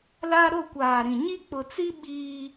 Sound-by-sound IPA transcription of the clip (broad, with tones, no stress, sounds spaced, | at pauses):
l a˦ ɾ o˦˨ kʷ aː˨ ɾ ĩ˨ ɲ i˦ k͡p ʊ˨ t͡s i˦ ɓ iː˦